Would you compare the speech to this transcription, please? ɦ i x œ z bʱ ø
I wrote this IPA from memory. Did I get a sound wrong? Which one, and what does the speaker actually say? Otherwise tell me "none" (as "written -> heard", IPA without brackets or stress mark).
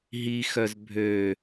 none